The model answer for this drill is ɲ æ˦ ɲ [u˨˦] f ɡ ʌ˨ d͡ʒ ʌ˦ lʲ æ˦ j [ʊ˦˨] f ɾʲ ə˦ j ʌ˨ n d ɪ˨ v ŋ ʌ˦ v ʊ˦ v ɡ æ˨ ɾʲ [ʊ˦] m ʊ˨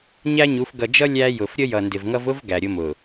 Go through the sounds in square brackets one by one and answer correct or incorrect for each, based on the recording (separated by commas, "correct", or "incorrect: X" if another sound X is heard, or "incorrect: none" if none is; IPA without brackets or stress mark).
correct, incorrect: ʊ˨, correct